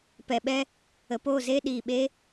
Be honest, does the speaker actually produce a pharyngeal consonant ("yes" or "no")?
no